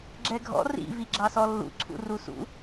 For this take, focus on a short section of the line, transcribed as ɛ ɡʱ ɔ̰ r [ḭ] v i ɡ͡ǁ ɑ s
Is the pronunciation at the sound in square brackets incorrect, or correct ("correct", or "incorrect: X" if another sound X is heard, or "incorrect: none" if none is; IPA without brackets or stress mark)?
correct